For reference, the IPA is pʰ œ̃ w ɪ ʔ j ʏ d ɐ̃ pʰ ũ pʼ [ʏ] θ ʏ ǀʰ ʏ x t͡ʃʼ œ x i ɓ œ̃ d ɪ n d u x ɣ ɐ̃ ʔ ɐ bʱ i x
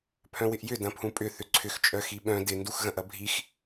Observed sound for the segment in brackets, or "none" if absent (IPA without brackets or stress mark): ʏ